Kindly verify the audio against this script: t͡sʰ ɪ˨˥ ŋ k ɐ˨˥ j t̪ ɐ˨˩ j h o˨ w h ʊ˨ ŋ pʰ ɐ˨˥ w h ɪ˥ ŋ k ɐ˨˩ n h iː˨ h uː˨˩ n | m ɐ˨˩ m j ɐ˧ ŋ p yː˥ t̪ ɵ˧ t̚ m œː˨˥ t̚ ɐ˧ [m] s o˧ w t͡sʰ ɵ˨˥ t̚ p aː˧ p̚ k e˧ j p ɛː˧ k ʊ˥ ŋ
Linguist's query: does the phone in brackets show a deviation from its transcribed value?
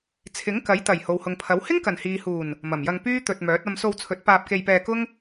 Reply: no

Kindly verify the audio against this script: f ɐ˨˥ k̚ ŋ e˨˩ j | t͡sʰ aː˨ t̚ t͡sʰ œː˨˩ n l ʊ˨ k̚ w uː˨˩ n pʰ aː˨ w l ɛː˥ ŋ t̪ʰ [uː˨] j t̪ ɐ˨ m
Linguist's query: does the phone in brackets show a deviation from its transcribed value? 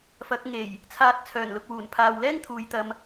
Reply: no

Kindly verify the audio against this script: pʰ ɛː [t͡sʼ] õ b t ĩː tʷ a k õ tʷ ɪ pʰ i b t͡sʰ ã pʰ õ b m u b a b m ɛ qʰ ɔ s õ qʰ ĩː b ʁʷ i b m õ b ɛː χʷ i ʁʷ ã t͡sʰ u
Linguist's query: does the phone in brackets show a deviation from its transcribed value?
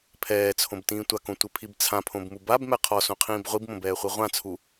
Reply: yes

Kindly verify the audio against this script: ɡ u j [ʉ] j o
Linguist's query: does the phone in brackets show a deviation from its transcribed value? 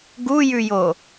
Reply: no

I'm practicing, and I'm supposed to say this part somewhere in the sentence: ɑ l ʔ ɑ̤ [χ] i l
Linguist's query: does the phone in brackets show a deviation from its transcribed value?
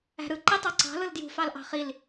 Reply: no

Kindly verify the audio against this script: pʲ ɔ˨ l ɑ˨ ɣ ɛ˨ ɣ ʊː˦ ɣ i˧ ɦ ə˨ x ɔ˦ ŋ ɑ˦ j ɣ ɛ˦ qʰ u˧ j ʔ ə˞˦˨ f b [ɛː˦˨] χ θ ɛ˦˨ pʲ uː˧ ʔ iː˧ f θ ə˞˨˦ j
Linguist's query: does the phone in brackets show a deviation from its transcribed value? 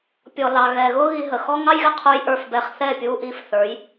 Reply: yes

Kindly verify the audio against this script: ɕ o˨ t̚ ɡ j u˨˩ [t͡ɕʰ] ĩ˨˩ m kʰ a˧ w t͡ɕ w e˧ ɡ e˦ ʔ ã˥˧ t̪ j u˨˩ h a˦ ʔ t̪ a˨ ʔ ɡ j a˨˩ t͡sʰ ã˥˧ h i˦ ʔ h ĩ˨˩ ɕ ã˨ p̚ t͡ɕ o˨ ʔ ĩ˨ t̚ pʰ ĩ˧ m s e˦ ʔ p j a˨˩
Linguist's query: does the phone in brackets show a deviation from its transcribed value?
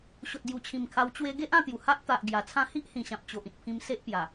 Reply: no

